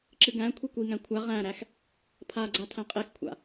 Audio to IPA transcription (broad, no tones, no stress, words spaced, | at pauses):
ǁɨɡæ̃kʷʰi kʷiŋæ̃ kʷʰa ʁæ̃ɾæx | pʰaɡ͡ǀa tʰæ̃qʼexkʷʰa̰